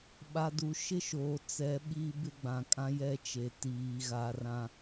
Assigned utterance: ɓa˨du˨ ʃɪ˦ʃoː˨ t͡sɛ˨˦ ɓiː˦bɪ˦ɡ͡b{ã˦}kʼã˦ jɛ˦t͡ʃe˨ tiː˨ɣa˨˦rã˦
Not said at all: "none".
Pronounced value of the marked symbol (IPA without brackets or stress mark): ã˨